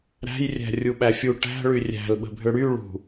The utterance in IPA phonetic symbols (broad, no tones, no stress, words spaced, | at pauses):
ɾæ̤jrʲæ̤ rʲuɓæfʲu ʈæ̤ɭy rʲæ̤lɓə̤bʱʏ ɽy ɭṳ